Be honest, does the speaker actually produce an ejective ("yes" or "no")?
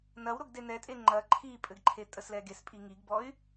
yes